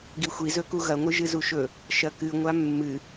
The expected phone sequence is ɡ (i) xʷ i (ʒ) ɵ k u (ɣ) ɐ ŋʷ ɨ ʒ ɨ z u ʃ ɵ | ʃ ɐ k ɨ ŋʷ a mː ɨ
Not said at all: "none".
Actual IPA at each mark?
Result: i, z, ɣ

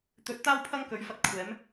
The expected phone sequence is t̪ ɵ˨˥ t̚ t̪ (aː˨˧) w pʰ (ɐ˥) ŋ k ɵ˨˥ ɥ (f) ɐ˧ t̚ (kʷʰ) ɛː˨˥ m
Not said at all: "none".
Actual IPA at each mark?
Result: aː˥, ɐ˥, f, kʷʰ

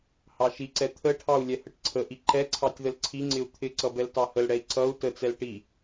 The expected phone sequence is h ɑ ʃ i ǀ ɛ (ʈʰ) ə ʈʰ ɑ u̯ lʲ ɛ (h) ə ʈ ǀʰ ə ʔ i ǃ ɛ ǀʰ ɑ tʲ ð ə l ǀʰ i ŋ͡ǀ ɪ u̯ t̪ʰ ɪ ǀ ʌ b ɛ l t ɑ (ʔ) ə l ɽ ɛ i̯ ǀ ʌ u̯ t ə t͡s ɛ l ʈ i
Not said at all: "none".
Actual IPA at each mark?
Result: t̪ʰ, h, h

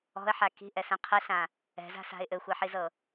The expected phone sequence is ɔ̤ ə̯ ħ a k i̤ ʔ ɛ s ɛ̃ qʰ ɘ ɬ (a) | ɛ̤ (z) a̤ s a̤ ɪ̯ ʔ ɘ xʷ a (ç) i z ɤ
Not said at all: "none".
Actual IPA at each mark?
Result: ã, z, ħ

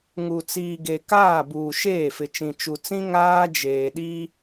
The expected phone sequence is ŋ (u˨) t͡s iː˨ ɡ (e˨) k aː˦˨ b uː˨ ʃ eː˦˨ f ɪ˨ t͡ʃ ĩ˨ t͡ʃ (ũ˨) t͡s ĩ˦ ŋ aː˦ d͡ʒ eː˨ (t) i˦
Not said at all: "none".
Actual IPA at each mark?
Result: u˨, e˨, u˨, ɗ

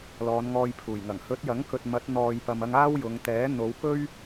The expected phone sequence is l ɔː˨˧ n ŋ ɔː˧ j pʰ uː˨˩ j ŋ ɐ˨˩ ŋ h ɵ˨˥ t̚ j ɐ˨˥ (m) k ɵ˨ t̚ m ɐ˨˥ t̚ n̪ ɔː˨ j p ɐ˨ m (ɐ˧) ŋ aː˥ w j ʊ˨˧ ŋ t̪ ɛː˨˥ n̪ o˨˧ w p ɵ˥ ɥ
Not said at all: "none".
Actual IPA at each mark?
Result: ŋ, ɐ˧

